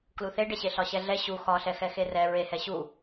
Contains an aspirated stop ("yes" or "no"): no